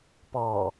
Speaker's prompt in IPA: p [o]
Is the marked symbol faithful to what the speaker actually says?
no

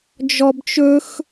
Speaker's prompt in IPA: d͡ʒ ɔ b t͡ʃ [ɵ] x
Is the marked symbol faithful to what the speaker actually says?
yes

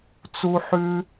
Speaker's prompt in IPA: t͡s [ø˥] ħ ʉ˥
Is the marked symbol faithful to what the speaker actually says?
no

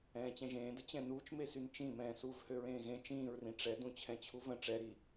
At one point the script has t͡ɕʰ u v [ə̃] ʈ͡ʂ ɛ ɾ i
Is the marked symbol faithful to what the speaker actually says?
yes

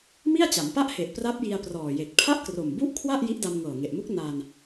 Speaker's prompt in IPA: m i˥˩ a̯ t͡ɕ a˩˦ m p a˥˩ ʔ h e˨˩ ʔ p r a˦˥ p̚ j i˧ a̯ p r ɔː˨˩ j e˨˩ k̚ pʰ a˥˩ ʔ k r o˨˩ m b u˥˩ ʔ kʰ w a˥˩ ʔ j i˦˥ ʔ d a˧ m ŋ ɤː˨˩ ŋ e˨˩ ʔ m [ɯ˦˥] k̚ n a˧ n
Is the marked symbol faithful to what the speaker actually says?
no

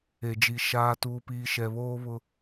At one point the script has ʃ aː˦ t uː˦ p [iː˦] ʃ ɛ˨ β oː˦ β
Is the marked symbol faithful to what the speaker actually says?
yes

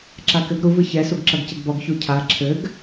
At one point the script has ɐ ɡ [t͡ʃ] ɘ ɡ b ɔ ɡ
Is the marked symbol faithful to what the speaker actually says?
no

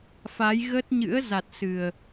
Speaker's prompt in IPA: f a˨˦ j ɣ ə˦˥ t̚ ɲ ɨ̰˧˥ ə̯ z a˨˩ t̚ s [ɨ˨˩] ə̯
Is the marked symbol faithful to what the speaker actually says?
yes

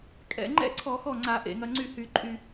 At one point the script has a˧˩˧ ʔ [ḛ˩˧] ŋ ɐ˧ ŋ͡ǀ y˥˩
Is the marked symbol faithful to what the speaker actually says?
yes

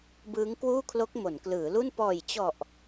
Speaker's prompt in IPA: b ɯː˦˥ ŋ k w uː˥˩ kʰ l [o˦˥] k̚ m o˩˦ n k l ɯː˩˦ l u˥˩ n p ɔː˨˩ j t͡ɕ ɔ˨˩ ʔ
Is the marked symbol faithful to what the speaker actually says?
yes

